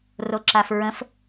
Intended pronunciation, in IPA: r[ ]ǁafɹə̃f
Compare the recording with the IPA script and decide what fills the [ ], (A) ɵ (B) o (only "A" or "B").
B